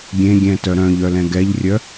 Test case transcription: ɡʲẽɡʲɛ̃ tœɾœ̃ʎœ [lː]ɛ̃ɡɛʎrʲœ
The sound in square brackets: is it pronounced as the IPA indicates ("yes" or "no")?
no